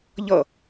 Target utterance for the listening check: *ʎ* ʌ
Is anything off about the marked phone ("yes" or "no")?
no